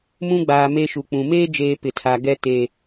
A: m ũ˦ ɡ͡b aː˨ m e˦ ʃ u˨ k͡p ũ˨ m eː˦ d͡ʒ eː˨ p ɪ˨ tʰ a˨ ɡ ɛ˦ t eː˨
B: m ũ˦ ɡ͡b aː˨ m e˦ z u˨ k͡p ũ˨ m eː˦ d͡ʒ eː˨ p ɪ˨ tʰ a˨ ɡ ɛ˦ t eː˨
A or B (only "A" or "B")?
A